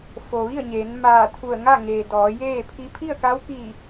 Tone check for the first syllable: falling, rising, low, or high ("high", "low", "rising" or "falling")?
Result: low